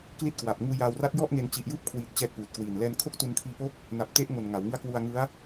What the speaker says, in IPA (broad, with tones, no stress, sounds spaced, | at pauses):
k l i˦˥ t̚ k w a˨˩ p̚ ŋ uː˧ j aː˧ w r a˦˥ t̚ j ɔ˥˩ ʔ ŋ e˧ n t͡ɕ i˨˩ ʔ j ɯː˥˩ p̚ kʰ w iː˨˩ t̚ t͡ɕ ɛː˦˥ k̚ p uː˨˩ t̚ k w iː˨˩ n l ɛː˧ n kʰ o˥˩ k̚ t u˧ n kʰ iː˧ p o˦˥ k̚ | n a˨˩ p̚ t e˦˥ ʔ ŋ o˨˩ n ŋ a˩˦ w ŋ ɯ˦˥ a̯ k w u˧ a̯ ŋ ɯ˦˥ a̯